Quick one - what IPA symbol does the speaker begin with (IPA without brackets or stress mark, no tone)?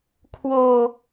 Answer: kʰ